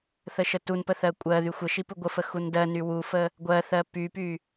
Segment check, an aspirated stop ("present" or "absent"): absent